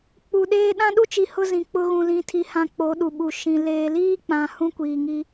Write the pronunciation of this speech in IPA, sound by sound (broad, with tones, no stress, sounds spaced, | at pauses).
k͡p u˨ ɗ eː˦ ɗ ã˦ ɗ u˦ t͡ʃ i˨ h ʊ˦ z ĩ˨ k͡p ʊ˦ ɣ ũ˨ l ĩ˨ tʰ i˨ h ã˨ k͡p o˨˦ ɗ u˨ ɓ u˨ ʃ ĩ˨ l eː˨ l iː˦ k͡p ã˨ h ũ˦ kʷ iː˨ ŋ i˦